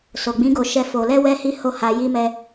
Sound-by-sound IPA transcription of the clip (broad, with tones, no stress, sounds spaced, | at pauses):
s o˨ ɡ͡b ĩ˨˦ ɡ o˧ ʃ ɛ˧ f o˨ l ɛ˧ w ɛ˦ h i˦ h o˦˨ h a˧ j i˦ m ɛ˦